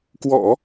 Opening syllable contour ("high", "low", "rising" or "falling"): low